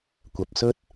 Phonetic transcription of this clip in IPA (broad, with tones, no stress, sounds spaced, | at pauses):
kʷ ɐ˨ p̚ s ɵ˥ t̚